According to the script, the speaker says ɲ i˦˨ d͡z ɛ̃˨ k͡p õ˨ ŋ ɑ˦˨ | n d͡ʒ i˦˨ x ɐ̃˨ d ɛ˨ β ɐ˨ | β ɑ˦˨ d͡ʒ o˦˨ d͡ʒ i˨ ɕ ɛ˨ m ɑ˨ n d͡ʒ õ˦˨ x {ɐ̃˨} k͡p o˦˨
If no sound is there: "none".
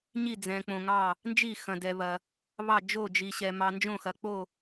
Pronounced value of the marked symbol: ɐ˨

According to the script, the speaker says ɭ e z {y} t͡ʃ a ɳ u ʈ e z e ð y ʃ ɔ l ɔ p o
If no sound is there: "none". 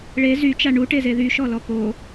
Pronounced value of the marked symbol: y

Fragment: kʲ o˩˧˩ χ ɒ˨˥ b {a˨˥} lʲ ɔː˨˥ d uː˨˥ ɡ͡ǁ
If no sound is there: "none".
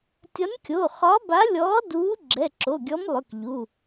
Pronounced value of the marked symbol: a˨˥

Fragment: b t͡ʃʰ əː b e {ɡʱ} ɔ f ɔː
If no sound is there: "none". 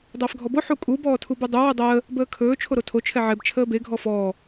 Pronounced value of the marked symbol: ɡʱ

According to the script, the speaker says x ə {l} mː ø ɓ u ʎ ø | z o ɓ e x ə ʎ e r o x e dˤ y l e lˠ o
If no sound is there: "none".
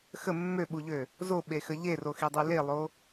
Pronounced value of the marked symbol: none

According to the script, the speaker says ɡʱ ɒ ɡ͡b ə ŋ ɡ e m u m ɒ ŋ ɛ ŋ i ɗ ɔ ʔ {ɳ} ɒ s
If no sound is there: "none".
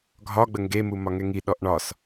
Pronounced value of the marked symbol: ɳ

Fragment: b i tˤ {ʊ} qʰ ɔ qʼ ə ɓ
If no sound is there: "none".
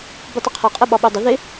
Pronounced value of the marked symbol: ʊ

